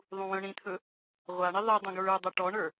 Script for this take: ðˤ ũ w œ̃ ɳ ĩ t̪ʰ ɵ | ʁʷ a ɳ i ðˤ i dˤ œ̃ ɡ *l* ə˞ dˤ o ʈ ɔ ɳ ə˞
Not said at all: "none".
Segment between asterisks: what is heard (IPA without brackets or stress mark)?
ɹ